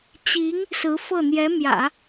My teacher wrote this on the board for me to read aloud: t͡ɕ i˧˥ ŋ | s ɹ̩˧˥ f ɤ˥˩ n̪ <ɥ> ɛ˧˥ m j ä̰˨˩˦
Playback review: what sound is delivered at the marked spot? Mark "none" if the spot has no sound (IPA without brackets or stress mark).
j